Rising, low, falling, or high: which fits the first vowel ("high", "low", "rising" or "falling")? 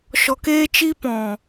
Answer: low